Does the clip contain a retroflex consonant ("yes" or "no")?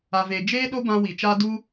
no